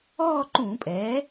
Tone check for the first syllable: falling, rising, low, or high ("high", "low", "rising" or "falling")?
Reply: falling